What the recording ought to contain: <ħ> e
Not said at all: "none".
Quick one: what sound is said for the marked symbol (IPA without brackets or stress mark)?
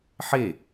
ħ